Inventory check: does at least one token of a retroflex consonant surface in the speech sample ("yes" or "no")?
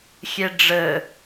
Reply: yes